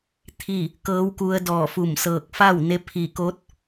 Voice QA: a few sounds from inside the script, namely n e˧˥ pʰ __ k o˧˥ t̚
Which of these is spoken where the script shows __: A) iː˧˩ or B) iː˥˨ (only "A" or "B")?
A